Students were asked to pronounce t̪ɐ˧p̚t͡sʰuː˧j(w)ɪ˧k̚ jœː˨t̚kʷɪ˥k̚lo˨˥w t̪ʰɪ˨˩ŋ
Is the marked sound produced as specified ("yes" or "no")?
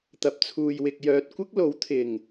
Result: yes